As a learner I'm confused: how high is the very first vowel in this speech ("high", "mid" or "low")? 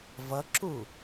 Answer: mid